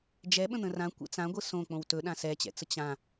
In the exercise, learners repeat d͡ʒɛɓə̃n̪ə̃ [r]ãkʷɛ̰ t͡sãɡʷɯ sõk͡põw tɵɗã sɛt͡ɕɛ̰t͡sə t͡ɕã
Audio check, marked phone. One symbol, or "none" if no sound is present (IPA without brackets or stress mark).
r